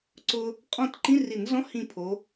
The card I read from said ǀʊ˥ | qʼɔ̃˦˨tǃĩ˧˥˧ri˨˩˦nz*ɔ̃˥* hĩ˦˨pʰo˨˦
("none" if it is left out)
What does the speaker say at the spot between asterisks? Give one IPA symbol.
ɔ̃˧˥˧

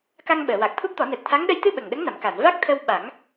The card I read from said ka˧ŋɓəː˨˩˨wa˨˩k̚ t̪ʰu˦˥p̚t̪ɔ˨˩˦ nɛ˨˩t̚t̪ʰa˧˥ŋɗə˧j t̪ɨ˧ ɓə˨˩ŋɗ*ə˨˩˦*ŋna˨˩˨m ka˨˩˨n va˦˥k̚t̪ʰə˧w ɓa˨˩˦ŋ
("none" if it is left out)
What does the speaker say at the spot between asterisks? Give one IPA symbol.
ə˧˥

